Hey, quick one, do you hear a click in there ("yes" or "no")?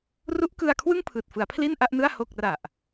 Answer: no